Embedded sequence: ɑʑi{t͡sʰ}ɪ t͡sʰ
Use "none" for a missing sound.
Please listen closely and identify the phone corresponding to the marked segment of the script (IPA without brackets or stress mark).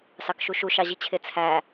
t͡ɕʰ